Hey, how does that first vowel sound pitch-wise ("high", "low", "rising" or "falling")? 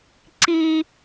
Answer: high